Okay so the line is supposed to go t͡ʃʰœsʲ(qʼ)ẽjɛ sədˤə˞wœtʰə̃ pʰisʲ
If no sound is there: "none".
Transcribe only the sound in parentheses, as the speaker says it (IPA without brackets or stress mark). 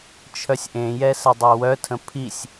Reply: ʔ